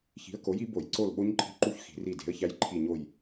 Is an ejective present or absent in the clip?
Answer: present